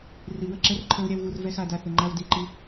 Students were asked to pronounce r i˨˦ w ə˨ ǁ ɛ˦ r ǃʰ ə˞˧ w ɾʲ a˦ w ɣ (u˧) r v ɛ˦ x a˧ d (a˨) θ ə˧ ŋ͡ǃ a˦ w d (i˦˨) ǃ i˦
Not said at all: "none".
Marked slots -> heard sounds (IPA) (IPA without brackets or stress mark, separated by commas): u˧, a˧, i˦˨